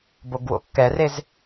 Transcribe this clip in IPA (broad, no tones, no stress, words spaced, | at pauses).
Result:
boɡwo̰kːɛrez